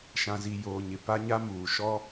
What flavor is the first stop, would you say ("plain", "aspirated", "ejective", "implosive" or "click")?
plain